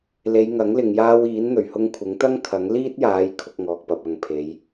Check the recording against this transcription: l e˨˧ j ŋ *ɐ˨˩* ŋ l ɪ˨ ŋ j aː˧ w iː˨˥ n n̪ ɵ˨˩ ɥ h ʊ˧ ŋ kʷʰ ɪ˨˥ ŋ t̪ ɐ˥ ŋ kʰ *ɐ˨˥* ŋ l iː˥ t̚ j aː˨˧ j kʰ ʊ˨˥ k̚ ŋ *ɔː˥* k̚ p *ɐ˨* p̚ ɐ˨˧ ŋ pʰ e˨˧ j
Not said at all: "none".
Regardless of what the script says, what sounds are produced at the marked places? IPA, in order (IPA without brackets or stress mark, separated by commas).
ɐ˨˥, ɐ˨˥, ɔː˨, ɐ˧